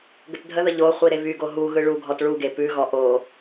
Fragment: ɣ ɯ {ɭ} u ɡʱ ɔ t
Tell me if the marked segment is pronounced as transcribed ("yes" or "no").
yes